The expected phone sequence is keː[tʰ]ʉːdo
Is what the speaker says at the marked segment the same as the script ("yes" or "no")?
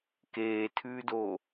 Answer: yes